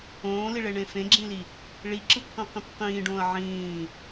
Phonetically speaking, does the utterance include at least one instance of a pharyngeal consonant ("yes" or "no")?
yes